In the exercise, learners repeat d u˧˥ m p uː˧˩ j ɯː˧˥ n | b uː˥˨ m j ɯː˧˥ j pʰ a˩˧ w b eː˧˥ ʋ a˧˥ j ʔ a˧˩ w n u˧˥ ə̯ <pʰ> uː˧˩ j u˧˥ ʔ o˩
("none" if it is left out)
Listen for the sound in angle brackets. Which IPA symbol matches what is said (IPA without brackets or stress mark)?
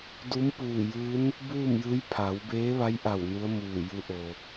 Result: m